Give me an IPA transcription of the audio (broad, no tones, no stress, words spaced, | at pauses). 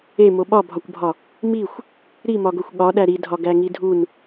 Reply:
emo ɓɒbʱɒkʷbʱɒ | mixʷ | ɾimɒɡoxʷ ɠɒɗæ ɾidʱɒɡæŋi dʱun